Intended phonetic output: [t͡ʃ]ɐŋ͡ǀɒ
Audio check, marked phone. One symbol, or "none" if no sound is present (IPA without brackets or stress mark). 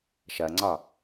ʃ